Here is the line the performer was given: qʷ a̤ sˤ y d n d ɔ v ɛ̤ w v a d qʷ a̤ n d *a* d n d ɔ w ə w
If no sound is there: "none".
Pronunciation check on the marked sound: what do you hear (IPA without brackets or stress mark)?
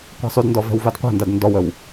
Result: a